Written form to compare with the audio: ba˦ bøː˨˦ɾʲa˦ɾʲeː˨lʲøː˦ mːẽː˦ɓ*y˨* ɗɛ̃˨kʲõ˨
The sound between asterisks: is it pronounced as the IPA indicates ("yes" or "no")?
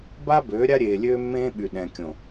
yes